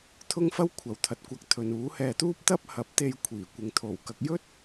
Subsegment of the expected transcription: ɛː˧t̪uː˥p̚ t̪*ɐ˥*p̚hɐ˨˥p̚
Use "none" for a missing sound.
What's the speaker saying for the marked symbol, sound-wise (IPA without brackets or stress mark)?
ɐ˥